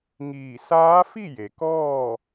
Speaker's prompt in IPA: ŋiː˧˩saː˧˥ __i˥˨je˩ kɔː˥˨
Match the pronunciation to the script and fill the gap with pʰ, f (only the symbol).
f